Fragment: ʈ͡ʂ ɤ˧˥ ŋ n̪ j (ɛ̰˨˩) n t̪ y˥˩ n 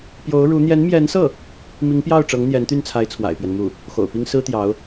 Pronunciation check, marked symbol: incorrect: ɛ˧˥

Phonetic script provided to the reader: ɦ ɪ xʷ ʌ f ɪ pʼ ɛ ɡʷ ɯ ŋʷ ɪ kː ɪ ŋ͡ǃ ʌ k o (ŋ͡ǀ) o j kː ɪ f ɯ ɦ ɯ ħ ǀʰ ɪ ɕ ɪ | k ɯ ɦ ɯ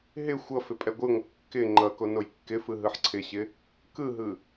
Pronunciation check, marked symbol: incorrect: n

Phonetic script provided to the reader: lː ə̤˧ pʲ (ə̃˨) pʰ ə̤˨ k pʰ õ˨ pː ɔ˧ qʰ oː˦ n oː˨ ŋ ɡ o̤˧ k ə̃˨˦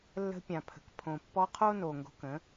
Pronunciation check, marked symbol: incorrect: ã˨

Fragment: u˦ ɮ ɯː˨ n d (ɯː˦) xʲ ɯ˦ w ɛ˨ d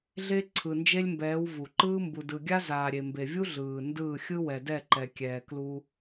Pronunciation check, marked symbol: incorrect: ɯː˦˨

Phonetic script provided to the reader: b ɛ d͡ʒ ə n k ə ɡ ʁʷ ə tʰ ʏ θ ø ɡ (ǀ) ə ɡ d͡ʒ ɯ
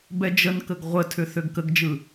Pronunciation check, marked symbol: incorrect: k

